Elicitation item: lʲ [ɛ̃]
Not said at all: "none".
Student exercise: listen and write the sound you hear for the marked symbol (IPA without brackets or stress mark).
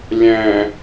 ɛ̃